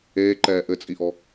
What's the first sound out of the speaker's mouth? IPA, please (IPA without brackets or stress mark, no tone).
eː